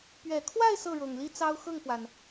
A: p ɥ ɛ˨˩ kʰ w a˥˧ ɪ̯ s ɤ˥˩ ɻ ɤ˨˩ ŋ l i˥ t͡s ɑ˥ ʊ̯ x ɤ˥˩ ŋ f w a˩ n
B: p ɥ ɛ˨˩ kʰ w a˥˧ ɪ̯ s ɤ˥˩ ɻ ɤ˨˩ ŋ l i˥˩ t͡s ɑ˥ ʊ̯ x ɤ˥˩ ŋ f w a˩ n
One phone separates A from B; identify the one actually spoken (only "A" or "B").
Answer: A